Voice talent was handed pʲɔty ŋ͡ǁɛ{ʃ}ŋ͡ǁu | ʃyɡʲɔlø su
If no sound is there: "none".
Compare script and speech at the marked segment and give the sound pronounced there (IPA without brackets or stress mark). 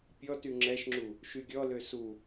ʃ